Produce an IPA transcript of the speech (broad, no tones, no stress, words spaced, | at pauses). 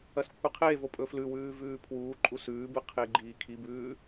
ɐskʷʰɨqʰevo pʼɵflʉwʉː vʉːpʰwuːǃʼu sʉːbɨ qʰeɡ͡ǃiːkʰibʉː